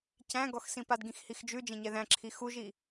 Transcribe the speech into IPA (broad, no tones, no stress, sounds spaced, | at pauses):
c æ̃ ɡ ɔ x s ĩ p a d ɡ ĩ x h i x d͡ʒ ʉ d͡ʒ ẽ ɲ ɛ ð æ̃ ǁʰ i x u ʒ i